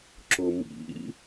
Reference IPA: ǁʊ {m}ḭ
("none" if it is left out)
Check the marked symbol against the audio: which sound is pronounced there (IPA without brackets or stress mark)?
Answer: m